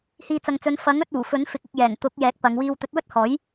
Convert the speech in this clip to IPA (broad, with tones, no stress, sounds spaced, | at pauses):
h iː˨ t͡s ɐ˨ ŋ t͡s ɵ˨˧ n f ɐ˨˥ ŋ ɵ˧ t̚ uː˨˩ f ɵ˨˥ n f ɪ˨ k̚ ʊ˨ k̚ j ɛː˨˩ ŋ t̪ ʊ˨˥ k̚ j ɛː˨˥ k̚ p ɐ˨˧ ŋ w iː˧ w t̪ ɵ˨˥ t̚ w ɵ˥ t̚ h ɔː˨˥ j